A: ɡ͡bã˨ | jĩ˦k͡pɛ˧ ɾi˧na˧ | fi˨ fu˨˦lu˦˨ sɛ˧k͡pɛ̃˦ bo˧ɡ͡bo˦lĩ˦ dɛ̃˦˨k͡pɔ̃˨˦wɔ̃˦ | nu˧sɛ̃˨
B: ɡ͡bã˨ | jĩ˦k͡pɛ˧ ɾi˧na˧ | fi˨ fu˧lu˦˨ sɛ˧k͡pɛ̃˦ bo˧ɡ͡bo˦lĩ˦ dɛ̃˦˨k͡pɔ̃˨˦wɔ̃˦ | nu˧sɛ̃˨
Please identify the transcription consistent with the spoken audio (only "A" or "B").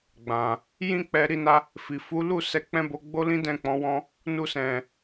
A